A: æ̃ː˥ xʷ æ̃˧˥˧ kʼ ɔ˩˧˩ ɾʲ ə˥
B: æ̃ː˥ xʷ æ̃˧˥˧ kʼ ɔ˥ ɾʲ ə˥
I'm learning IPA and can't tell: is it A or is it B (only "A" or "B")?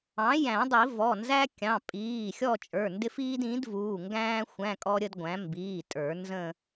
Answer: B